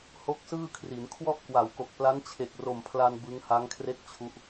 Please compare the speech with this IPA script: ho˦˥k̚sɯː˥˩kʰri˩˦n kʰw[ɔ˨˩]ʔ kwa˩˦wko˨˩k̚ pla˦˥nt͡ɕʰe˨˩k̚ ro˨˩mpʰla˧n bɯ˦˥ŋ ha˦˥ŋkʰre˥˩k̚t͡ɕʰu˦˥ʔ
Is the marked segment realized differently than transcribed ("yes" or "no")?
yes